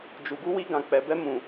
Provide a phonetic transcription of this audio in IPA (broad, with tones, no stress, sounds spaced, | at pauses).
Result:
d͡ʒ u˨ ɡ u˧ w i˧ ɡ ã˨ k͡p ɛ˨ b ɛ˧ m ũ˨